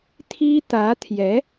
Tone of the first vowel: high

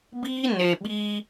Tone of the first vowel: high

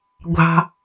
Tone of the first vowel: low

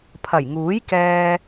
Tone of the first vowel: low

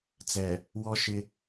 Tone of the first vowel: low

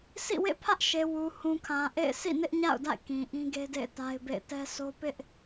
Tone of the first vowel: falling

